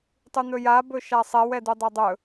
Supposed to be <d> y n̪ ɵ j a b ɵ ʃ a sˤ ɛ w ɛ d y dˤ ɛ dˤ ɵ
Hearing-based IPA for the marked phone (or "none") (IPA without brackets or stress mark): tˤ